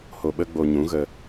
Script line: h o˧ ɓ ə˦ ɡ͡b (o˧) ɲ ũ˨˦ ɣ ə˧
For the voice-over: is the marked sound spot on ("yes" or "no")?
yes